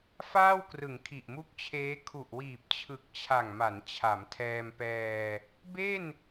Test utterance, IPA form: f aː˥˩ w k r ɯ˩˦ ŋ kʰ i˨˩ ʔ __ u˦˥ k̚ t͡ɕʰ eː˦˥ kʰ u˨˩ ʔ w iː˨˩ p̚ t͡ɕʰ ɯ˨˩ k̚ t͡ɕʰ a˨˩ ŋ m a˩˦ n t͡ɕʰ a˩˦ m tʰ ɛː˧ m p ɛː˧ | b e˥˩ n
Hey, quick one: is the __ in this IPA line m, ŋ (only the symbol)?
m